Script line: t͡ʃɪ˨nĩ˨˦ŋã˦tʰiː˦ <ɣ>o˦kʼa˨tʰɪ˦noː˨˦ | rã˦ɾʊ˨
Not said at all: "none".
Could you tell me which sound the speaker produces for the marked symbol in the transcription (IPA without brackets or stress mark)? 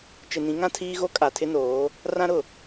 ɣ